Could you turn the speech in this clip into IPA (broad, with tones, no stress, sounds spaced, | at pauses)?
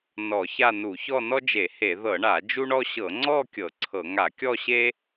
n ɔ˧˩˧ ç a˥˧ n u˧˩˧ ç ɔ˥˧ n ɔ˥ d͡ʒ e˧˩˧ h e˧˩˧ ð ɤ˧˩˧ ɳ a˧˩˧ d͡ʒ u˥ ɳ ɔ˥ ɕ ɤ˧˩˧ ŋ͡ǀ ɔ˥˧ kʲ ɤ˧˩˧ ǀʰ ɤ˧˩˧ ŋ a˧˩˧ kʲ ɔ˥˧ ɕ e˥